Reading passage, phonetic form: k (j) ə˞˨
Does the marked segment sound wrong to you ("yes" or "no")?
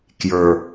no